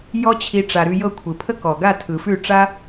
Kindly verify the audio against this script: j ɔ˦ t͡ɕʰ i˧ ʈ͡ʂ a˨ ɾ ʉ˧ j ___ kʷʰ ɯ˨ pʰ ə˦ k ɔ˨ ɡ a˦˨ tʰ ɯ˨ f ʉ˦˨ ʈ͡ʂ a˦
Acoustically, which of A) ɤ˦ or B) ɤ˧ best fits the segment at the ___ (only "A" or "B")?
B